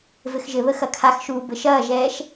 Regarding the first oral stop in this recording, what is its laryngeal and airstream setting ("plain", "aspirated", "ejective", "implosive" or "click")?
aspirated